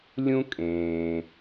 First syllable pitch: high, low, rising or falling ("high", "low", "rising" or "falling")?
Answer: high